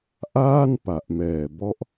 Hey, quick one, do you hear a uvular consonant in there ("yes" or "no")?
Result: no